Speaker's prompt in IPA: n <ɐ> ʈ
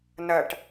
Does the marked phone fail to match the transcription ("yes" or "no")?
no